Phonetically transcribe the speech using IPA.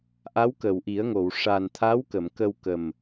ʔ a˧˥ w k ə˨˩˨ w ʔ i˨˩˦ ə̯ ŋ o˨˩˨ w ʂ a˨˩ n t̪ʰ a˧˥ w k ə˨˩˨ m k ə˧ w k ə˨˩ m

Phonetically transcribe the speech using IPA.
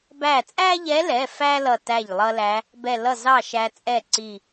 b æ˧˩ t͡sʼ æ˥ ʎ ɛ˧˥ l ɛ˩˧˩ f æ˥ l ʌ˧˩ t æ˥˩ ʎ lˠ ʌ˥ l æ˧˥ | b ɛ˧˩ l ʌ˥˩ z ɑ˥˩ ʃ æ˧ t͡sʼ ɛ˥˩ ǀ i˧˩

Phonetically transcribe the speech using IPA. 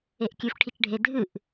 e ʔ kʲ ʉ f ʈʰ i t͡ʃ ɖʱ e dʱ ɨ ʔ

